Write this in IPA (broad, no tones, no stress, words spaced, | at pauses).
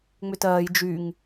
ŋ͡mʏtɜːj d͡ʒyŋ